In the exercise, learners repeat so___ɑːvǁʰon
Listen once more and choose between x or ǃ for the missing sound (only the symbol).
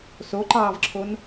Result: ǃ